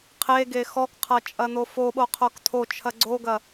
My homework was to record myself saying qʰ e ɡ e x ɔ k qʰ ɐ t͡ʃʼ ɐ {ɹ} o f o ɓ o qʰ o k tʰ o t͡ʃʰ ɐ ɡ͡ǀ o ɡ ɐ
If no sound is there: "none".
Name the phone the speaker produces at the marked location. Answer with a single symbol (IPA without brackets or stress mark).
n̪